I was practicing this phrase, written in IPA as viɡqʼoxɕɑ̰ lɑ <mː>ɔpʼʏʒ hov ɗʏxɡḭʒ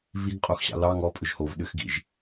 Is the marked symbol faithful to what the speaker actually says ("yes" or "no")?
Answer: no